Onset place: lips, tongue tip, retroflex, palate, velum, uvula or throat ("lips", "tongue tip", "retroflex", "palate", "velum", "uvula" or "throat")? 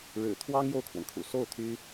retroflex